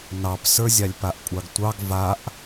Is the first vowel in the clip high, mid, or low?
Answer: low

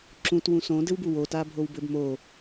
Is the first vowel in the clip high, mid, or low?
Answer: high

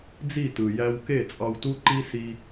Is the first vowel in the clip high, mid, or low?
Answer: high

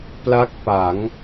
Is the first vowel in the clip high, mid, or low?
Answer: low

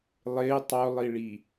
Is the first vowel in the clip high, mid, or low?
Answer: high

